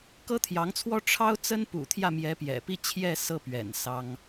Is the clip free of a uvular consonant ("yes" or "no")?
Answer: yes